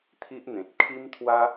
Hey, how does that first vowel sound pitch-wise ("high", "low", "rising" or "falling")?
high